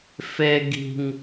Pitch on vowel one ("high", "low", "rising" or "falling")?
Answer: high